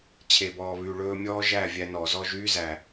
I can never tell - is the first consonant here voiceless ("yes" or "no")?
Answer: yes